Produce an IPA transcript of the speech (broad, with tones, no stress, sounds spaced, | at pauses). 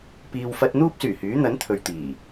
p iː˨ w f ɐ˧ t̚ n̪ uː˥ p̚ s yː˨˩ h yː˨˥ n̪ ɐ˨˥ n t̪ʰ ɵ˨ ɥ t̪ iː˨˩